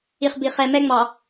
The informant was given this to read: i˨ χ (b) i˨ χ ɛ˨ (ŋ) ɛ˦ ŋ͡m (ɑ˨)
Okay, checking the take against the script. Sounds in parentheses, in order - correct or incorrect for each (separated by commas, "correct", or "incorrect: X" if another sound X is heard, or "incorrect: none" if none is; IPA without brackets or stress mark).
correct, incorrect: m, correct